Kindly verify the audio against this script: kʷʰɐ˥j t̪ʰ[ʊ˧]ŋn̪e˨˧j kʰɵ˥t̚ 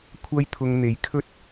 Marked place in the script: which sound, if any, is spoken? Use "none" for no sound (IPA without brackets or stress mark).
ʊ˧